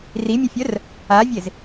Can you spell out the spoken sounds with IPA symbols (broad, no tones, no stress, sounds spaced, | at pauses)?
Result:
r i mʲ ə fʲ œ r | a vʲ e z